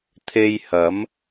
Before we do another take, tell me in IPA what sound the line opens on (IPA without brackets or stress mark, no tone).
t̪ʰ